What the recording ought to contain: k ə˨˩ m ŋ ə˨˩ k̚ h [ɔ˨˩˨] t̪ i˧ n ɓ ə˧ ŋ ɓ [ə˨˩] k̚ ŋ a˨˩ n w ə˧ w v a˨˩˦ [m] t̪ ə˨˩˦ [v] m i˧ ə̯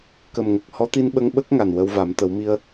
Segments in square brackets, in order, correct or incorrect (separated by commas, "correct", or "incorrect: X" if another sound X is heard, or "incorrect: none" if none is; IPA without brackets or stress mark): incorrect: ɔ˧˥, incorrect: ə˦˥, correct, incorrect: w